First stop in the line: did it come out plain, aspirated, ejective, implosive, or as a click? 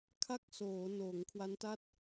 aspirated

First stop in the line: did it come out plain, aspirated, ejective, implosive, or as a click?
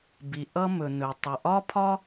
plain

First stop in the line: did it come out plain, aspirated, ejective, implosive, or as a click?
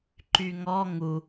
click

